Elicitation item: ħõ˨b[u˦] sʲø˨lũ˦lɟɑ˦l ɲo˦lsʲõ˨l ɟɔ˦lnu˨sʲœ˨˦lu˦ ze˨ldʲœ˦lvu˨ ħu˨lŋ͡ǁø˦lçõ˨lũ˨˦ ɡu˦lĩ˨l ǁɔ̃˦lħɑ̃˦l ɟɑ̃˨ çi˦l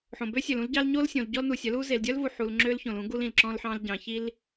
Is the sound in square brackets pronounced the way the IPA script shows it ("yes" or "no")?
no